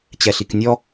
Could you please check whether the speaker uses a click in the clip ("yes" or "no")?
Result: no